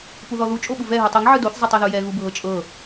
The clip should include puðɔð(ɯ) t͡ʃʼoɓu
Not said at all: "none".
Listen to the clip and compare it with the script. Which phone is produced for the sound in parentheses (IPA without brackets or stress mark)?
u